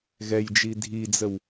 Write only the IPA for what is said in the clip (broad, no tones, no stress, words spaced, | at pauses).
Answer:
ɣɛjd͡ʒi dʱid͡zəw